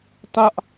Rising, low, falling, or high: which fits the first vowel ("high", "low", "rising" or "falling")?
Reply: high